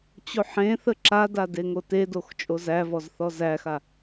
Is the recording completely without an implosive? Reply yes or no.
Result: yes